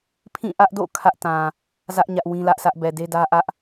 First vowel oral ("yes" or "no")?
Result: no